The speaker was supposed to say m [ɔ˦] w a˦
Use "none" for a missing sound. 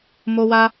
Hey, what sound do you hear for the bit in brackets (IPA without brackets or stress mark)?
o˦